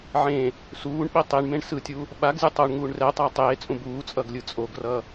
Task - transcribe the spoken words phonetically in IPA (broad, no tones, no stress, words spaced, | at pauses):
ʕẽ | suːɳɓi tˤiɳmẽɳ sɯtʲu | ɓaɡ zʲʌtˤoɳŋuːɳ rɛtˤa tˤeːt͡sʼũ buːt͡sʼʌɡ lʲɯt͡sʼoɡrʌ